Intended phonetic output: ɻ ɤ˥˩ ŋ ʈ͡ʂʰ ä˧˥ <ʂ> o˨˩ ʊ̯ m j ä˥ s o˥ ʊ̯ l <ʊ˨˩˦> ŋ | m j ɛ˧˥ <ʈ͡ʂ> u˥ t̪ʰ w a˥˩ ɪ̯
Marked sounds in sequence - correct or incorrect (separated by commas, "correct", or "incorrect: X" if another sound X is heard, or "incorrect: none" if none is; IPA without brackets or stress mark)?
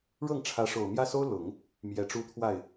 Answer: correct, correct, correct